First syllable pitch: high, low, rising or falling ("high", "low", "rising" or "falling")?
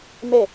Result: falling